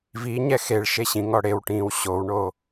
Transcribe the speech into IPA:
v i ɲ ɛ x e ɭ ʃ e ɕ ĩ ŋ ɔ ɽ e w ʈ ĩː w ɕ o w ɳ o

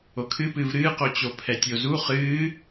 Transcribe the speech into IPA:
o kʰ ɨ p ɨ v ɾ ɨː q o t͡ɕ o pʰ ɛ tʲ o z u χ ɨː

